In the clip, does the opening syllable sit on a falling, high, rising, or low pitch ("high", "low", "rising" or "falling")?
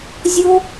high